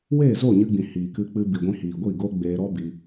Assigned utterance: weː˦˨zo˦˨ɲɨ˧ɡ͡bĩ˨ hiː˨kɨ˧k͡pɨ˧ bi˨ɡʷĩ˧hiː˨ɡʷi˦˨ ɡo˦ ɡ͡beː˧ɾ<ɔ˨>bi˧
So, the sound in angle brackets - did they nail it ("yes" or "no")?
no